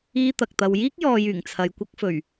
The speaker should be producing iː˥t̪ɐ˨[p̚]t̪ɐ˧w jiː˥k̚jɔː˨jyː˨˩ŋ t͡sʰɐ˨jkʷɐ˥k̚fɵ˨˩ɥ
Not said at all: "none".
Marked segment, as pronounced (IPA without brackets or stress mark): k̚